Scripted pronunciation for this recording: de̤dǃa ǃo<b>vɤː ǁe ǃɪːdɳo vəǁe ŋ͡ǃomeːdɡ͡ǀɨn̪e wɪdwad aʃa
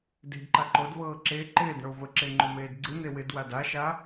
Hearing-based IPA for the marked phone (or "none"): d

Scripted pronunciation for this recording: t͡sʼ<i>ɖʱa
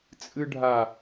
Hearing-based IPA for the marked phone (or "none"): ɨ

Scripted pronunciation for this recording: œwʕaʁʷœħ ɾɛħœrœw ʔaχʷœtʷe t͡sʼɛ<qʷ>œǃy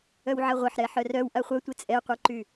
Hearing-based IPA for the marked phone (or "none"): qʷ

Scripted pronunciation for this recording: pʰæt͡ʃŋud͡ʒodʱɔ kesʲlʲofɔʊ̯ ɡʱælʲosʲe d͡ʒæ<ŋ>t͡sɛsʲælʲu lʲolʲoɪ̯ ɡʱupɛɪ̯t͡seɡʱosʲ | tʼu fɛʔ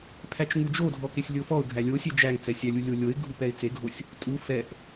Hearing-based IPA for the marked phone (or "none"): ŋ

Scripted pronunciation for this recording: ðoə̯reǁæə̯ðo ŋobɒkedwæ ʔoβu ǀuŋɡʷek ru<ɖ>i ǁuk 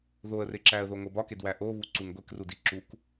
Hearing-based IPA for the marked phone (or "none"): d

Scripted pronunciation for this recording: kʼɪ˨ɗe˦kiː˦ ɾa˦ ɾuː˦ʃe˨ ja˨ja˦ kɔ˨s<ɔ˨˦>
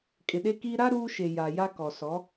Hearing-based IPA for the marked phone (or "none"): ɔ˨˦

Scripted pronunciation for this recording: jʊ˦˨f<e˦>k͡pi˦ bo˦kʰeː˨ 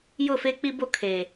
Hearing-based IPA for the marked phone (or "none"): e˦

